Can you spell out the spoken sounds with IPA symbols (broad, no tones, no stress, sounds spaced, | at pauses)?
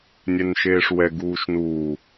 nʲ ɛ n ʃ eː ʂ w ɛ ɡ uː ʃ n uː